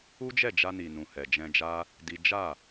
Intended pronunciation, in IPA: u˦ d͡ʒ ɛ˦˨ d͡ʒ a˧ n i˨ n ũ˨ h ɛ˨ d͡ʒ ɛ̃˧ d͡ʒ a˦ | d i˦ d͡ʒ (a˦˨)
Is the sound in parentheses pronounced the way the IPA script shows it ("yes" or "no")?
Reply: yes